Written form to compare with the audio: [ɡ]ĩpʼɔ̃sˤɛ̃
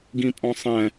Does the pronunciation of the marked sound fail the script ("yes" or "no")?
no